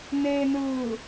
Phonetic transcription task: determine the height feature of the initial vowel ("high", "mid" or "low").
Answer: mid